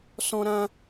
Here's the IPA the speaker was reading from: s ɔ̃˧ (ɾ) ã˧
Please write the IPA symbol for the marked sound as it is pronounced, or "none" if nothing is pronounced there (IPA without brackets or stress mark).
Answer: ɾ